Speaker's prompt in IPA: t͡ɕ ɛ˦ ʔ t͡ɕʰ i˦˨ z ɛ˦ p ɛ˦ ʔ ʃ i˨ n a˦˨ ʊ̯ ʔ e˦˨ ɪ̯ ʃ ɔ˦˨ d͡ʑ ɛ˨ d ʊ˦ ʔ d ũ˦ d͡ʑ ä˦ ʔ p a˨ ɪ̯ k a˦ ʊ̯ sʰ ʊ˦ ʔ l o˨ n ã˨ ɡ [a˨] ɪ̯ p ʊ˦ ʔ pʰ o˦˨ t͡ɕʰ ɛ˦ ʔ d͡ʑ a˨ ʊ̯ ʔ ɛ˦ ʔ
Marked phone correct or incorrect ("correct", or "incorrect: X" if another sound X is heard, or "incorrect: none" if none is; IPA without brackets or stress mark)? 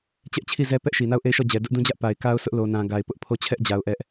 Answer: correct